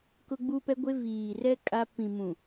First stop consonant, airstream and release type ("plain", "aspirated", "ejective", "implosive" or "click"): plain